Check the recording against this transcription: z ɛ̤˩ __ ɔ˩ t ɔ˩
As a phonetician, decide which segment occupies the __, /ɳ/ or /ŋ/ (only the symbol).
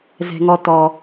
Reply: ŋ